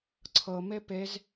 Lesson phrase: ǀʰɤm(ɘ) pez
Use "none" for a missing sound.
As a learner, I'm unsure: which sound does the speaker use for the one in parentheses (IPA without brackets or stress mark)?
e